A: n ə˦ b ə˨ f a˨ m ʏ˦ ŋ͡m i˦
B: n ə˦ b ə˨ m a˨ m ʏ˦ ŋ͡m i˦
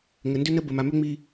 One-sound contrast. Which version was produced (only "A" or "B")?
B